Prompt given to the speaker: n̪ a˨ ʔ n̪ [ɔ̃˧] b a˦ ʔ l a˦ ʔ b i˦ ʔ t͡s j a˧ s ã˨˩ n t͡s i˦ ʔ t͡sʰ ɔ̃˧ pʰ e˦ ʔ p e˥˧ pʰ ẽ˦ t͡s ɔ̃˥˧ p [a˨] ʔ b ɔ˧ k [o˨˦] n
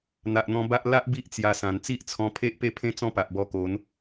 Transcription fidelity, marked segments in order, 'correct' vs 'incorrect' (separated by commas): correct, correct, correct